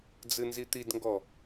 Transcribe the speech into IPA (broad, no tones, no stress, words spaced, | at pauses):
d͡zɨnzit̪idŋɡɔ